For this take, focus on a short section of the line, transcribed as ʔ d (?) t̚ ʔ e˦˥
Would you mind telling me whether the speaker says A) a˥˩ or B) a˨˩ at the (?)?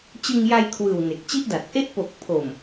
B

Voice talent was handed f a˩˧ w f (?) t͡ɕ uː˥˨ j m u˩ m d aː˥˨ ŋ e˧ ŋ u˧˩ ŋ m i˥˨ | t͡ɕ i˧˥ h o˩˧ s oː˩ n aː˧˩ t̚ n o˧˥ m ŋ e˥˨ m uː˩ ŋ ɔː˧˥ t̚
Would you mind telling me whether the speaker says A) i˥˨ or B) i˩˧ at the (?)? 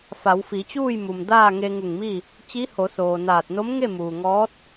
B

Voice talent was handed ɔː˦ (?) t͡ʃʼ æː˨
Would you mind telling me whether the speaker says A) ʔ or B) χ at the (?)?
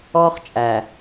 B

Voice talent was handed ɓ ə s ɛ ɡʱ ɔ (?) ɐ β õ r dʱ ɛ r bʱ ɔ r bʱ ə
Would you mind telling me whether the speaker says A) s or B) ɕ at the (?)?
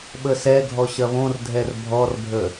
B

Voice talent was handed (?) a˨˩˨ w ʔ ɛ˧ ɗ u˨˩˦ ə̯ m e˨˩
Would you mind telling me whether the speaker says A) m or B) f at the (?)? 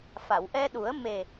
B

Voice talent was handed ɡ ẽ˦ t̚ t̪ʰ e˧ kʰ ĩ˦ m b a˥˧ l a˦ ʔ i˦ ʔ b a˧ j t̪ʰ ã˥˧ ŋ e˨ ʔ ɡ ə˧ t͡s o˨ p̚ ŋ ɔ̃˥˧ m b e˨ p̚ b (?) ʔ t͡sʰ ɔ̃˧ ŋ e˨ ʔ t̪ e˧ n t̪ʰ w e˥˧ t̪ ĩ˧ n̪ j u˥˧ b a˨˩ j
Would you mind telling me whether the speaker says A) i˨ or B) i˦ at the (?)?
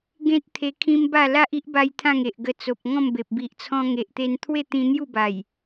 A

